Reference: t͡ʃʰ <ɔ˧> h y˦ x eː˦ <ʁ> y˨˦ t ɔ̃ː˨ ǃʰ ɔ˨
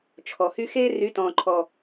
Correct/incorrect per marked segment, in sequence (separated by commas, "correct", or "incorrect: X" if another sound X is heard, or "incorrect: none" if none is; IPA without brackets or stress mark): incorrect: ɔ˨, incorrect: r